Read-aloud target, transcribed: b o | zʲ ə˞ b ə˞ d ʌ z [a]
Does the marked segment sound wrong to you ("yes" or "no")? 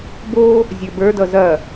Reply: yes